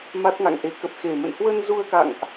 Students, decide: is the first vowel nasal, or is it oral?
oral